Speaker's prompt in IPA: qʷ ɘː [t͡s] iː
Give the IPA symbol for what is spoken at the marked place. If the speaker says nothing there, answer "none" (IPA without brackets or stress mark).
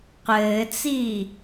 t͡s